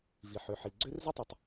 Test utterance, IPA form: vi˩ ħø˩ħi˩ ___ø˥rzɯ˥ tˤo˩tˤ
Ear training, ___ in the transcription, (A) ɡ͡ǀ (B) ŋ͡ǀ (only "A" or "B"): A